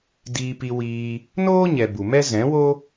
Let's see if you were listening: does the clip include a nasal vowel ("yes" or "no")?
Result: yes